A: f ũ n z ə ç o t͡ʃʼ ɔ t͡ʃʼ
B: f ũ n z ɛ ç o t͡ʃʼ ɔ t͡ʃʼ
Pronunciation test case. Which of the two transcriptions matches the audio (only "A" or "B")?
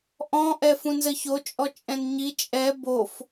A